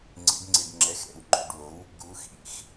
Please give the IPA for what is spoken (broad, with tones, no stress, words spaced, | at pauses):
ŋ͡ǀḭ˩˧ɖŋ͡ǀi˩ɖ ŋ͡ǁɛ˩˧˩xɾɛ̰˩wŋ͡ǃo̰˩˧˩ɖwo˩˥w | ɡu˩˧xḭ˩˧x